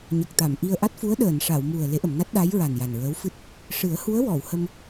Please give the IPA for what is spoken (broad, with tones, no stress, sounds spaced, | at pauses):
ɲ ə˨˩ k̚ t̪ a˨˩˨ m ʔ i˧ ə̯ ʔ a˦˥ t̚ f u˧˥ ə̯ ɗ əː˨˩˨ n ʂ a˨˩˨ w m u˨˩ ə̯ l e˧˥ ʔ ə˨˩˨ m n a˦˥ t̚ ɗ a˧˥ j ɹ a˨˩ n j a˨˩ n ɹ əː˧˥ w f ɨ˦˥ t̚ | ʂ ɨ˨˩˦ ə̯ h u˧˥ ə̯ w ɔ˨˩˨ w h ə˧ m